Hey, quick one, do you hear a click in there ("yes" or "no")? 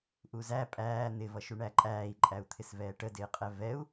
yes